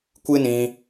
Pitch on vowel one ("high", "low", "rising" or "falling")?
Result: high